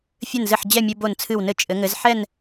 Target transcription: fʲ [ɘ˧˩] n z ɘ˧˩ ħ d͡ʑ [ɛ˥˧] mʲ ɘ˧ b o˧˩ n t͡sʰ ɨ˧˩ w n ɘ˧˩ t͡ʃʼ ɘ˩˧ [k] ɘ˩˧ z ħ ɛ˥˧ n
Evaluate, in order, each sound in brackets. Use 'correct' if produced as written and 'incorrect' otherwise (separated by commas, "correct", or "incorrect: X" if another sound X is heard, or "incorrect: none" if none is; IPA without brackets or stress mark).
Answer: correct, incorrect: ɛ˧˩, incorrect: ŋ